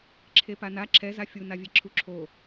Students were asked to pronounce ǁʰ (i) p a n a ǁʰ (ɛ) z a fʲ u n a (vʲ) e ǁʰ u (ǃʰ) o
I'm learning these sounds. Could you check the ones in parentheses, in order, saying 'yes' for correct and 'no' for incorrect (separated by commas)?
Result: no, yes, yes, no